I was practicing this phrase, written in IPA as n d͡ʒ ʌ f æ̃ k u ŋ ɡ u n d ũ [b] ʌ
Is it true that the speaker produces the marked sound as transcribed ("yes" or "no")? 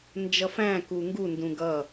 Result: no